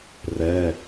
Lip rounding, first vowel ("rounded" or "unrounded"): unrounded